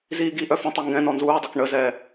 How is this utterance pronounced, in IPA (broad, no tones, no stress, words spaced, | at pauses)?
ziːɡiʔœ fə̃tˤi ŋɡɛ̃ nɔnzuːdˤœk ɳəzɛː